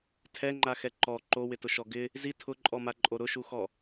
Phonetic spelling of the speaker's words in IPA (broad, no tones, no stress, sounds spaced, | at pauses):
tʰ ɛ ŋ͡ǃ a x ɛ ǃ ɔ ǃ o w ɪ t ʊ ʃ ɔ ɡ ɪ | z i tʰ ʊ ǃʼ ɔ m a ǃʼ o ɾ ʊ ʃ u x ɔ